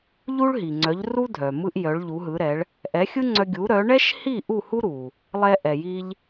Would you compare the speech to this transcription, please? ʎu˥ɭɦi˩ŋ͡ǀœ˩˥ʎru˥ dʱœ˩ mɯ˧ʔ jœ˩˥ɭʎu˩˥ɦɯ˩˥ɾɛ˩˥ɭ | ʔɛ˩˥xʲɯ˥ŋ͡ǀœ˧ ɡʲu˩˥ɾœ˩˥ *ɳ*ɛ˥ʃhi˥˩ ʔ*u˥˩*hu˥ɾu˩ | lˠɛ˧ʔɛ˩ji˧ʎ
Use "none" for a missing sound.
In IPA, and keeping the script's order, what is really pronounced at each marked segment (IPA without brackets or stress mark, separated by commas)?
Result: ɳ, u˥˩